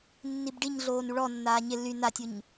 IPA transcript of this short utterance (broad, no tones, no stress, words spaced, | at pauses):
nːibɖiɲɮoːn uɭɔnːaː ɲɪ ly natʲuɲ